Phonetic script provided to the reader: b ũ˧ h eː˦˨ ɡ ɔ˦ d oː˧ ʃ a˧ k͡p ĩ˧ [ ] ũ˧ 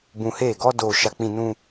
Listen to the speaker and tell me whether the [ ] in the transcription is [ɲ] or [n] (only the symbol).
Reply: n